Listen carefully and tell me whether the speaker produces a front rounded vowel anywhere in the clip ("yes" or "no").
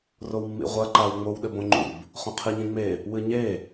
no